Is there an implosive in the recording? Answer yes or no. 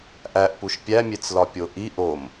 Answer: no